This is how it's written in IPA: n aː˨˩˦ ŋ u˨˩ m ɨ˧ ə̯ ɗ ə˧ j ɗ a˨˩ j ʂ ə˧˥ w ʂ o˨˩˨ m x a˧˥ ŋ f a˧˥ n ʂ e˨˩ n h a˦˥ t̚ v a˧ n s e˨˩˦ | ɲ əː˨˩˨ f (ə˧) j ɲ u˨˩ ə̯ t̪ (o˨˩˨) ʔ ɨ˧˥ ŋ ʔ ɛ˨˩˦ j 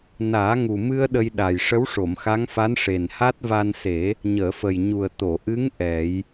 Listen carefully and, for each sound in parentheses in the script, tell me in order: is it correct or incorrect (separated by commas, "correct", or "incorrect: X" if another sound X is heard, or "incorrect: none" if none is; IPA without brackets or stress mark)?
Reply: incorrect: ə˨˩, correct